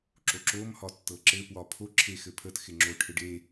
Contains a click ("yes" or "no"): yes